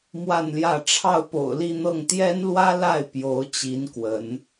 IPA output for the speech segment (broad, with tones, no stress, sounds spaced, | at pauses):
m w a˥˧ n l j ä˥˧ ʈ͡ʂʰ ɑ˥˩ ʊ̯ p o̰˨˩ ʊ̯ l i˥˧ n̪ ɤ˥˩ ŋ t̪ j ɛ˥ n l w ä˥ l a˥˩ ɪ̯ p j o˧˥ ʊ̯ t͡ɕ i˧˥ n k w ə˧˥ n